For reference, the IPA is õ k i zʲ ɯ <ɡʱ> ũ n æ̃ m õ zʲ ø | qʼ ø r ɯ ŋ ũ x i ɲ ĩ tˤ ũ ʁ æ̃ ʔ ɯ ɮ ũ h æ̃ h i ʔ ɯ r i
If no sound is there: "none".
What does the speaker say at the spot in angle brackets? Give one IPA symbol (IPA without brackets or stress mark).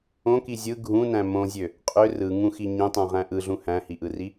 ɡʱ